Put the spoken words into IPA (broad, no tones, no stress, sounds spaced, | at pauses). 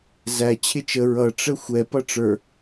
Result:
z æ t͡ɕʰ ɪ t͡ʃ ə ɹ ʌ ʈ͡ʂ ə xʷ ɛ p ʌ ʈ͡ʂ ə˞